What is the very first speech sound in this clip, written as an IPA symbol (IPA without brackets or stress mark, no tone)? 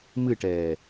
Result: m